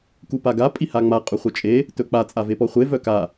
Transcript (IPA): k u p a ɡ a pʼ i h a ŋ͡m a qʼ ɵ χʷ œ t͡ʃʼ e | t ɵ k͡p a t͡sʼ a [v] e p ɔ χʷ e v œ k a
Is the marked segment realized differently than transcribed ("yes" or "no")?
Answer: no